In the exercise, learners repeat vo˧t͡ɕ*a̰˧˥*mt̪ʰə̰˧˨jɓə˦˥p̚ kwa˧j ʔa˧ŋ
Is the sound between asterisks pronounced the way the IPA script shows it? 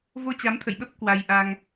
no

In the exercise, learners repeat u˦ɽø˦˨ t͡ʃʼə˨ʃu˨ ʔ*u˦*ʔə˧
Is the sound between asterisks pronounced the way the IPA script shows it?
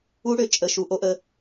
no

